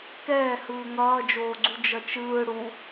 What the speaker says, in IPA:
kɛːhɯː ŋʌːd͡ʒoːɡ͡ǀu d͡ʒʌt͡ʃɯː ɽu

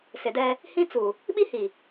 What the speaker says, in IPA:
sɪ˨dɛ˦ | hĩ˦t͡su˨ | ɓi˦hi˨

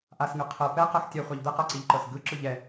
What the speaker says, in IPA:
ʔasŋɯ qʰɤ pɛqɜx tʲɛχʷaʎ d̪ɛqɤǀiʎǃɤs ɡɯǁɯ ʎɛ

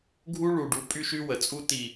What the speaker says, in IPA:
ɡʱu˦ɭu˨ɖu˨˦ pʼy˦ʃy˦wə˨t͡sʼu˦ ti˨

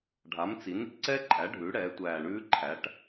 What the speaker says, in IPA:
ɖʱa˩˥mt͡si˩˥nɾḭ˧˩ǀɛ˦˥ ǃʼæ˩˥ ɖʱʉ˩˥ ɽɛː˩˥tʷæː˧˩ɳʉː˦˥ ǃʰæ˩˥ʈ

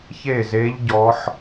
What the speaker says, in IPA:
çe˥˧ze˦˥ʎ ɟɔ˦˥ħ

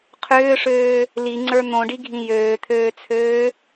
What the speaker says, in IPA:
qʰʏːʂøː | liŋ͡ǀə˞ n̪õɖiɡʱĩ jøːt̪ʰøːt͡sʰøː

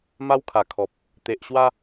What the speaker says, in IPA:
ma˦wkʰa˨˩kʰɔ˨p̚ | t̪e˨ʔɕwa˦

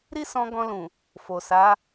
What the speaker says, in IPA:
ɾi˦sɔ̃˧ ɡɔ̃˧lũ˨ | fo˨sa˨˦

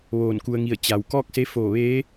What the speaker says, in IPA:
ʋoː˧˩nku˧ə̯ŋi˧˩ə̯ t͡ɕa˩w kɔː˥˨k̚ se˧˥foː˧˩ ʋeː˧˥

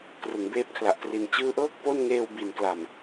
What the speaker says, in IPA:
krɯ˩˦ŋbeː˦˥p̚kʰla˨˩ʔtri˨˩n t͡ɕɯː˦˥ʔɤː˥˩k̚ po˥˩n ŋeː˧w bi˨˩nkla˨˩m

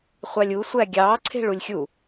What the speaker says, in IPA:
χʷɑlʲu sʷæɡʲɑː ǀʰe̤ɭulʲxʲu

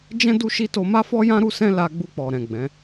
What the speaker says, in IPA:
d͡ʒɛ̃˦ du˦ʃi˦ to˧ma˦fɔ˦jã˦ ɾu˦sɛ̃˦ la˧ ɡ͡bu˧k͡pɔ˨ɾɛ̃˨ ɡ͡bɛ̃˨˦

